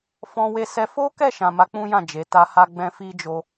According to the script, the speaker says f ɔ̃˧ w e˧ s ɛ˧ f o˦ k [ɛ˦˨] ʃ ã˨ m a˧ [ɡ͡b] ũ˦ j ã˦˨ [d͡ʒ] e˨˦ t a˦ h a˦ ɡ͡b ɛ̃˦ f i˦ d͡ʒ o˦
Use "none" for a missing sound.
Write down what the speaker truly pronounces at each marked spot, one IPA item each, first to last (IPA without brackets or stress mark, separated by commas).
ɛ˦˨, k͡p, d͡ʒ